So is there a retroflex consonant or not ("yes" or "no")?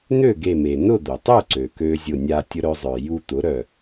no